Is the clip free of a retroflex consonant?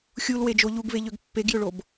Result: no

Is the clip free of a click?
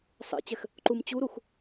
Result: no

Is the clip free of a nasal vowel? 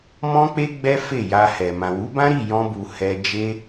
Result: no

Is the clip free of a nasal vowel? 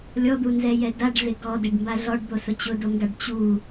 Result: yes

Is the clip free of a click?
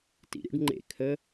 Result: no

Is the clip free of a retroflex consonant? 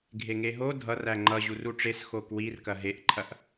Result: no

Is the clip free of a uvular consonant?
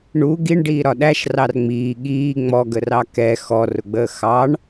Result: yes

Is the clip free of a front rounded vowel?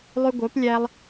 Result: no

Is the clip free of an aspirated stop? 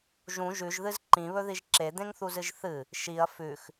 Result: yes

